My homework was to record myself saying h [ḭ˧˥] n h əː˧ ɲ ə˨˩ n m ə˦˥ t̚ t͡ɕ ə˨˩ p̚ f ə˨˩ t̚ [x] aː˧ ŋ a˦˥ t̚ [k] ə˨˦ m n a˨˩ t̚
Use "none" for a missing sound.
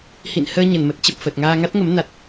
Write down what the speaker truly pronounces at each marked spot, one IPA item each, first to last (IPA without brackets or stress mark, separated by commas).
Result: ḭ˧˨, ŋ, ŋ